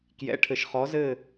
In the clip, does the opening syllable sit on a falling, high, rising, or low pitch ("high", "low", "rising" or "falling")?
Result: rising